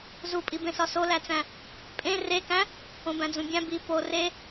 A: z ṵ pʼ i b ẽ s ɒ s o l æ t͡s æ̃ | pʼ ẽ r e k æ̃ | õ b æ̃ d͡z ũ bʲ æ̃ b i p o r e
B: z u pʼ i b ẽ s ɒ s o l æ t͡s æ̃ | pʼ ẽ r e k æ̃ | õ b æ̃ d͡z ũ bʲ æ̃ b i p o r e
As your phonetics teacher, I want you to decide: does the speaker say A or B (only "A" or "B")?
B